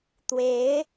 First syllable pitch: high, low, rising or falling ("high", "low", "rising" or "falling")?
rising